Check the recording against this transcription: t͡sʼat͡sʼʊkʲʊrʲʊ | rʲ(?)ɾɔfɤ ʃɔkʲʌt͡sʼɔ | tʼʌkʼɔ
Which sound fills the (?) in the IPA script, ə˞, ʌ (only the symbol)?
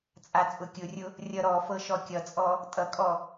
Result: ʌ